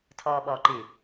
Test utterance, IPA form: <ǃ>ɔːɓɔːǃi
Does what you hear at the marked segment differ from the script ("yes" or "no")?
yes